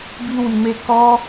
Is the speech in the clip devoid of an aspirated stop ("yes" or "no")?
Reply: yes